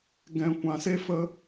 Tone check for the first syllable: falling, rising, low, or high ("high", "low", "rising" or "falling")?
low